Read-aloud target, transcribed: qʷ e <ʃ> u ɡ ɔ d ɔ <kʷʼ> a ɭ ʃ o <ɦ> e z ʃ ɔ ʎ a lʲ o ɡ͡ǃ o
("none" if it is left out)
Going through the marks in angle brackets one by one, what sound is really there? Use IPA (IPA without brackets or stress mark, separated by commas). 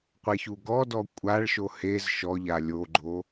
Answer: ç, kʷʼ, h